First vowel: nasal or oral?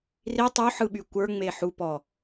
oral